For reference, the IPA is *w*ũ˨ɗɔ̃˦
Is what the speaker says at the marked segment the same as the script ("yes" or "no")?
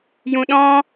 no